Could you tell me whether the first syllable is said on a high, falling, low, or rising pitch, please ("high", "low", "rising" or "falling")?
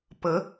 rising